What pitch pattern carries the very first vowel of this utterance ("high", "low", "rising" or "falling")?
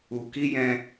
low